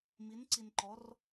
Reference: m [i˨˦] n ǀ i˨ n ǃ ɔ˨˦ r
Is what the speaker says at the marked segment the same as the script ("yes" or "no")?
yes